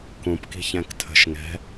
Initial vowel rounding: rounded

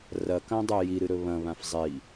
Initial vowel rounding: unrounded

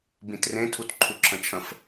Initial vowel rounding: unrounded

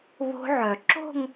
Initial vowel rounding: rounded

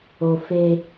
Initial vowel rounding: rounded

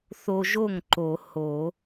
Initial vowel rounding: rounded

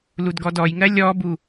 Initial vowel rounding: rounded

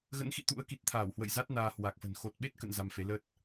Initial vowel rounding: unrounded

